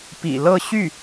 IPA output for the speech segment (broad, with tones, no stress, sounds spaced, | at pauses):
p ḭ˨˩ l ɤ˥˧ ɕ y˥˩